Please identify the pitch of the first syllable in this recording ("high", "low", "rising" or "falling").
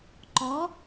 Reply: rising